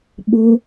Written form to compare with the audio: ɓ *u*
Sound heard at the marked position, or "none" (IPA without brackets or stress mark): o